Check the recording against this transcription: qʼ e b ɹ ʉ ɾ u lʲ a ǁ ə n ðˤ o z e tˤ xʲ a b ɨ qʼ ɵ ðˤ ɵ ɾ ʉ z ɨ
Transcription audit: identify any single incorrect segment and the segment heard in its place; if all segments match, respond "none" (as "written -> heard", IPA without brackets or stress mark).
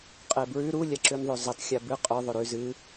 ə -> ʉ